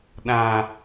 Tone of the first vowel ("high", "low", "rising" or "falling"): low